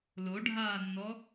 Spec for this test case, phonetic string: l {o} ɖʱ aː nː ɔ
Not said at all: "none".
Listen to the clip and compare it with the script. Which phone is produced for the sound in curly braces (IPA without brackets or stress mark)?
o